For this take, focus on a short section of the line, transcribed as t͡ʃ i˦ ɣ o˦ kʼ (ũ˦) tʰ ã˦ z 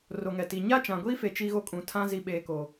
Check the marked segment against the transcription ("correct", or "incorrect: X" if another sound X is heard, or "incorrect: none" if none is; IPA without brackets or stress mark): incorrect: ũ˨